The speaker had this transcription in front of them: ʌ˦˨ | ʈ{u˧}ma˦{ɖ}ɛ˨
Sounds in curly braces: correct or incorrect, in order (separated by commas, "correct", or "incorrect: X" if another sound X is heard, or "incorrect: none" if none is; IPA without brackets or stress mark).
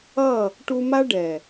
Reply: correct, correct